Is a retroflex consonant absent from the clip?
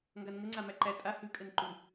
yes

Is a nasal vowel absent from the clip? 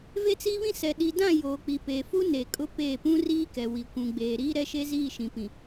no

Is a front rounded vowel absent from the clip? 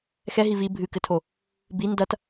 yes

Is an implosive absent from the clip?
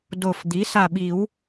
no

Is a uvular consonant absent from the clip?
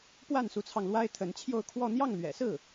yes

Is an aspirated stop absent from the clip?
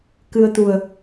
yes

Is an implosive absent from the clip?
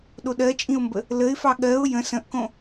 no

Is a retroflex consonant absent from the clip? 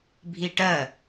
no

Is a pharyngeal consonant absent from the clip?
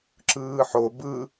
no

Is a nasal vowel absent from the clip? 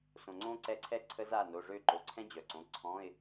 no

